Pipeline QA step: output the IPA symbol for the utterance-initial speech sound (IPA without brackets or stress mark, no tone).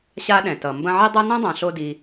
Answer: ɕ